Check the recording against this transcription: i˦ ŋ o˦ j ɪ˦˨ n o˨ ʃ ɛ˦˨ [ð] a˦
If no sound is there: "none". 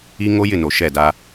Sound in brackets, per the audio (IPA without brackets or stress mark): d